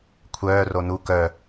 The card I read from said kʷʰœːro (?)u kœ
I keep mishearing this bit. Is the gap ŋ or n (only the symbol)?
n